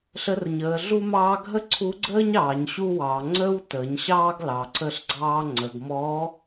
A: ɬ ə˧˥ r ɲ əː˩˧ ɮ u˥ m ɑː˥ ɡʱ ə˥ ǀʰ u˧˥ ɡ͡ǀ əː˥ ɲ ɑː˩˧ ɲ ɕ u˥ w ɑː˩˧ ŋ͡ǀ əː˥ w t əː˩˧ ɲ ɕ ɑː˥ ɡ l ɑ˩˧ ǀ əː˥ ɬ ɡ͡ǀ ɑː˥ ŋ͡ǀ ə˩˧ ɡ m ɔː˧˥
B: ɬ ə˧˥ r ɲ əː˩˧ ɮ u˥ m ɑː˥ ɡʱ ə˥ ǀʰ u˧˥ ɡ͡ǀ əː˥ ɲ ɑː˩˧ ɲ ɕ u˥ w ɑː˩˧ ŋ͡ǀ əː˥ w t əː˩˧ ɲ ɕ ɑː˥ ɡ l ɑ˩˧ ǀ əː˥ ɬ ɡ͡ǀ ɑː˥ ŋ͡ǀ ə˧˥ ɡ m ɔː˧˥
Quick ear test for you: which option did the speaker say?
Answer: A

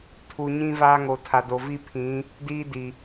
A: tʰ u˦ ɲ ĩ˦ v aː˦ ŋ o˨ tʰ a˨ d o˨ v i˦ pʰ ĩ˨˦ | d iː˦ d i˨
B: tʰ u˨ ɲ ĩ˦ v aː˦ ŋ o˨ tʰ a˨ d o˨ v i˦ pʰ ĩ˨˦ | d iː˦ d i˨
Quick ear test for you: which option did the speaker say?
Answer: B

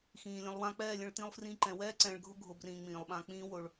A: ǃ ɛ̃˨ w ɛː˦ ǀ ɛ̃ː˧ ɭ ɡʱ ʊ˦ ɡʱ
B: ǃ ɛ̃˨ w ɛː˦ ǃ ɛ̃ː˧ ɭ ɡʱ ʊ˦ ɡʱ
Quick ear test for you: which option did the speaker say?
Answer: A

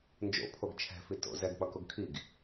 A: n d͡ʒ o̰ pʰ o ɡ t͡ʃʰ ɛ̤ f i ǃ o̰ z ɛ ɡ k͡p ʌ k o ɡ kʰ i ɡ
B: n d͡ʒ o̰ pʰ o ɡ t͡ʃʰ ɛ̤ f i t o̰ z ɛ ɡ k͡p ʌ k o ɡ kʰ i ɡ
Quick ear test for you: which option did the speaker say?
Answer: B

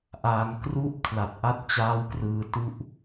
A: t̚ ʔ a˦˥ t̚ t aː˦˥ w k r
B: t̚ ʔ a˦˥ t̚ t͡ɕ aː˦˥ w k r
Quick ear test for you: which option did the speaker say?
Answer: B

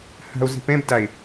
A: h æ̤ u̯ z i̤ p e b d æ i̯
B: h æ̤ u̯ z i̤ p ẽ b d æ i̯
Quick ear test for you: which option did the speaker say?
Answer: B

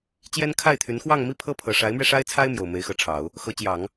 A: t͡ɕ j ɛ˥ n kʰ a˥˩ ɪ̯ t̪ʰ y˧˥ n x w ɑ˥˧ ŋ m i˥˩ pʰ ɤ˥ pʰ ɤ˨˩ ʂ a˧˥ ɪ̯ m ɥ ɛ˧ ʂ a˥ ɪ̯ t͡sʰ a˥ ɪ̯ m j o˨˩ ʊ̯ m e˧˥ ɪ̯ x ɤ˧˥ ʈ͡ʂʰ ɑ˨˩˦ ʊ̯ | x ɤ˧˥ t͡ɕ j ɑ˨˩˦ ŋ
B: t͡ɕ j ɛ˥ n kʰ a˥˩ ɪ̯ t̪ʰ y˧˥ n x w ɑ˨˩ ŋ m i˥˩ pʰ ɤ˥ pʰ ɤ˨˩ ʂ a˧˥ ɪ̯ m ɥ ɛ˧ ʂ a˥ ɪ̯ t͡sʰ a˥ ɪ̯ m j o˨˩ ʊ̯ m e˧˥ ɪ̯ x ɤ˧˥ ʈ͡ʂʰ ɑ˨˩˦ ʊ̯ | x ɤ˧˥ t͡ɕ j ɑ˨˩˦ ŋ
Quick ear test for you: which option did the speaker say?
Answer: A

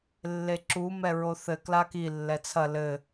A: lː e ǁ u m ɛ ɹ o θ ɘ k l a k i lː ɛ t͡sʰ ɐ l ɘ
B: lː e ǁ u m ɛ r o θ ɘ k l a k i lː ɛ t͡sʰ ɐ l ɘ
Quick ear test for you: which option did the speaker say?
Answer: A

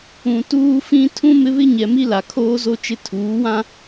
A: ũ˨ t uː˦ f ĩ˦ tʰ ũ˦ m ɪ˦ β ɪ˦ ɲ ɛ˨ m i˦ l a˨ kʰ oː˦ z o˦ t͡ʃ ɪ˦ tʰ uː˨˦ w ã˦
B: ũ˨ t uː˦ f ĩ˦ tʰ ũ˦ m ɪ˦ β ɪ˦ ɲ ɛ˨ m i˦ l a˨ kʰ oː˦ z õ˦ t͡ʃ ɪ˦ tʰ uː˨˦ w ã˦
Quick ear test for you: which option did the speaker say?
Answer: A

